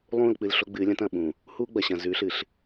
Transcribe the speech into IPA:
lˠũː˦˨lk͡pɨ˨l ɬo˦ɡ͡bɨː˨˦lʲɐ̃˦t ɐ̃˨ɓũ˨ | huː˦ɡ͡bɐ˨ɕɐ̃˨ zʉ˨˦ɬɨ˨ɬ

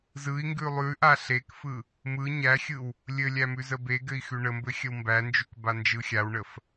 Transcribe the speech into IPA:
zɯi̯ŋɡʉ lˠʉʔa ɬekfɯ | mɯ ɲæxʲɯw | lʲɘlʲæ mʉzəbeɡɘi̯ xʉɳəmbɘ xʲəwmbænd͡ʒʉk band͡ʒɯxʲawɳəf

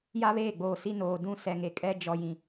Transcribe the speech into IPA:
ja˦βeː˦˨ ɡ͡boː˨si˦ noː˨dũ˦ sɛ˨ŋe˨kʼɛ˦ d͡ʒɔ˨ jĩ˨

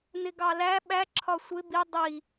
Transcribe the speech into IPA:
nɪɡɑlæ ɓæ ǁʰɒsʷɪ bi dˤi

